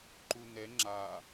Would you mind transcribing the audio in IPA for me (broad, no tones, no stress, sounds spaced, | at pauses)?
ǃ u n ɛ ŋ͡ǁ a